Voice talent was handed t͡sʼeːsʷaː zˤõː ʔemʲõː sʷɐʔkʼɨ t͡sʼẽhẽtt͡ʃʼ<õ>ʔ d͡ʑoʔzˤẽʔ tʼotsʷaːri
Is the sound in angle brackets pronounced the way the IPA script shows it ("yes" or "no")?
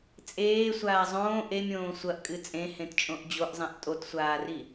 yes